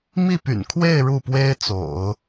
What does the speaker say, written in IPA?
mi˥˩py̰˨˩n kʰwe˥˧ɪ̯ ɻu˥˩pwe˥ɪ̯t͡so̰˨˩˦ʊ̯

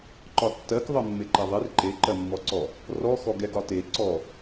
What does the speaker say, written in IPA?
ǃɒtːɜk ðˤɜmːeǃɛðˤer ǃe ǃɜmːɔǀɔ | rɔ xɔɡɛɡɒte ǀɔ

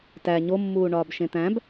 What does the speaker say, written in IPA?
tæ ɲomːuːɳɒːb ʃẽt̪æ̃b

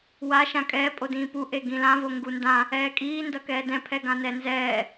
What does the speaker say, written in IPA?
wa ʃãkʼɛː pʼodĩːpu ʔeɡĩlã voŋɡundã | ɛːkʼiː ndʌkɛːdɛ̃ pʰɛɡãnɛnzɛː

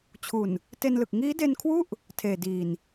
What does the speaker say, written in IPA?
t͡ɕʰu˨˩n | te˧nlɯ˨˩k̚ ŋiː˦˥de˧nkʰwu˥˩ʔ | tʰeː˨˩diː˨˩n

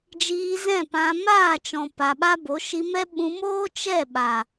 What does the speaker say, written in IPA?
d͡ʒiː˧zɛ̃˦˨pã˧ maː˦˨t͡ʃɔ̃˨ pa˨ɓa˦bo˨˦ ʃi˧mɛ˦ ɓũ˧moː˦ t͡ʃɛ˦˨ɓa˨

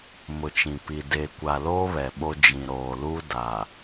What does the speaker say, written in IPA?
mʊ˨t͡ʃĩ˨ pi˨ de˨kʷa˨loː˦ βɛ˨ɓo˦ d͡ʒĩ˨ɾoː˨lu˦ da˨

